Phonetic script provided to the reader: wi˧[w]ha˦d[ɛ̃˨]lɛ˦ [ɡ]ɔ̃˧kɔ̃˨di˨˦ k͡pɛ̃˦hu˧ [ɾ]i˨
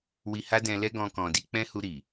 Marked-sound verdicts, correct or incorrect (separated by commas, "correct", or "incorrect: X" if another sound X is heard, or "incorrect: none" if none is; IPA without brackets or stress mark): incorrect: none, incorrect: ɛ̃˧, correct, correct